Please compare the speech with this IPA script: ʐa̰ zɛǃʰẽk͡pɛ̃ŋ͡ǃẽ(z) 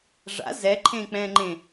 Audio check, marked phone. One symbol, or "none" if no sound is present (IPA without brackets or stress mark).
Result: none